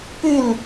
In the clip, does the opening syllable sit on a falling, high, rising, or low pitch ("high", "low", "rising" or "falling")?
falling